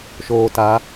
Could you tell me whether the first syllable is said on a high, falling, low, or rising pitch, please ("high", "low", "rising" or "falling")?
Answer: low